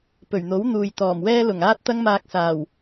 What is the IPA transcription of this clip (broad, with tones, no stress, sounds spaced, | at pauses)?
p ɵ˨˩ ɥ n̪ o˨˥ w n̪ uː˨ j t̪ ɔː˨˩ m w ɛː˥ l ʊ˨˩ ŋ aː˥ t̚ t̪ ɐ˧ ŋ m aː˨ k̚ s aː˨˩ w